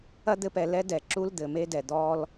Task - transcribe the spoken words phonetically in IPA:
ɐ˦d̪ɘ˧p ɛ˨ lɛ˦dɛ˨ ǁu˦ld̪ɘ˨me˦dɛ˨ d̪ɔ˦l

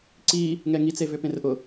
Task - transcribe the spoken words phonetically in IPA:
ǀi | ŋɛŋi t͡sevʏpẽrʔʊ

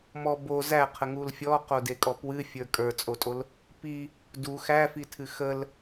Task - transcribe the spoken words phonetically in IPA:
mɔ bo zæqʰəŋul fʲɔqodekʼɔ pwɨfʲə˞ kʼə˞t͡sʼotʼol | pi | du xæfitʰɨ xəl

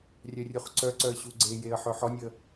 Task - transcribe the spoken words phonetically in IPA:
rʲœrʲuχǀœǀœə̯ ɕuɡ͡ǀejeə̯ ħœħɔnʲə

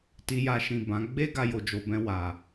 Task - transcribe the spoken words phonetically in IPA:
ti˧ja˧ʃĩ˨ bã˨˦ ɡ͡be˦ ɡa˧jo˨d͡ʒo˨bɛ̃˧ wa˨

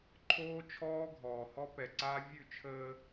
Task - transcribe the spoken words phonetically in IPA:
ǃʰoː˦t͡ʃʰɔː˦ɡʱɔː˨hɔ˦ pɛ˨ǀaː˦ vʲʉ˦˨t͡ʃʰəː˦

